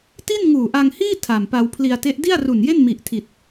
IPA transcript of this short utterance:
ti˥˩nŋuː˨˩ʔa˧ŋhiː˥˩ tʰa˨˩m pa˧wpʰli˧a̯te˦˥ʔ di˥˩a̯ru˨˩nje˥˩n mi˨˩ʔtʰi˨˩t̚

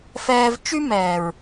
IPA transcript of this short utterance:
fɛː˧v t͡ʃy˦mɛː˨ɹ

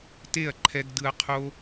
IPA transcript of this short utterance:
te˦˨ɐ̯ǃʰɛ˧ɡ dɯ˧ɐ̯qʰo˦

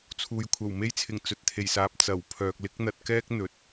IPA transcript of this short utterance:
t͡sʰuː˨j kʷʰɐ˨˩wme˧jt͡sʰɪ˨˩ŋ t͡sɵ˨t̚t̪ʰe˨˩jsaː˨p̚ t͡sɐ˨˩w pʰœː˨k̚lɪ˥k̚n̪ɐ˧t̚ kɛː˥k̚ n̪ɵ˨t̚

